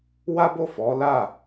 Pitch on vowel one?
high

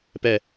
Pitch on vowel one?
low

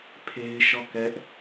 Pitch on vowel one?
high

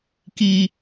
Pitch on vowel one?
low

